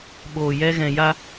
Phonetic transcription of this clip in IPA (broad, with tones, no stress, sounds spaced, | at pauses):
ɓ o˧ j ɛ˦ ɣ ɛ̃˨ j a˧